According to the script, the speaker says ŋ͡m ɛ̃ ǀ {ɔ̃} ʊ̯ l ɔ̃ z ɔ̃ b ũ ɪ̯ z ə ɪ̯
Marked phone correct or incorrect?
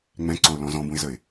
correct